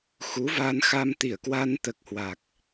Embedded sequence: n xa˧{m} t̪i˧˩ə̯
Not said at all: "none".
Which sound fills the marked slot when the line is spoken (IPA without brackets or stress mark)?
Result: m